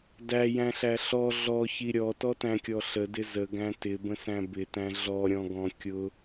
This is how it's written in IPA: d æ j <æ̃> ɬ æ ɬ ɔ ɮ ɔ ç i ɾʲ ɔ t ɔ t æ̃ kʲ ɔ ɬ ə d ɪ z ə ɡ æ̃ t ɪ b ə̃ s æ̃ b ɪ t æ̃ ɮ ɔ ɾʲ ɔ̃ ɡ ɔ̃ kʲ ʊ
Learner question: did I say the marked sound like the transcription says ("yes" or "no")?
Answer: yes